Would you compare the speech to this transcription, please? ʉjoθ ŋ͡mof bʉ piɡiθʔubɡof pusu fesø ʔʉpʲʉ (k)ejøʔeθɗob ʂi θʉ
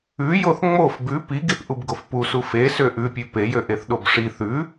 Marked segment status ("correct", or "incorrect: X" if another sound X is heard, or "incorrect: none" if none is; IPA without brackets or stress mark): incorrect: p